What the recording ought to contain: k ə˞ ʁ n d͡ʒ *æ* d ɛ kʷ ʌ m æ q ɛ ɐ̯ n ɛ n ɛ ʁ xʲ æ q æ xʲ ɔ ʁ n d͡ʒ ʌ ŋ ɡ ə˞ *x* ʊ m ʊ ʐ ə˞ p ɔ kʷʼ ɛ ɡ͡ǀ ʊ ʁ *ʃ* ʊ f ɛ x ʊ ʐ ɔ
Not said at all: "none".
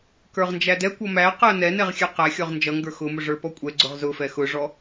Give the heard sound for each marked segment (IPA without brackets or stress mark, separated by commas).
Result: æ, x, z